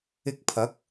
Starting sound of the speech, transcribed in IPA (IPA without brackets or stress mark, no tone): ɪ